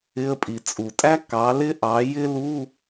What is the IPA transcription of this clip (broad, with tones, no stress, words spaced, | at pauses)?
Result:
ɪ˧˥˧ə̯pʼi˨˩ t͡sʼu˨˩tʼæ˥ kɑ˨˥ lɪ˥ʔɑ˨˥ jɪ˥lu˧˥˧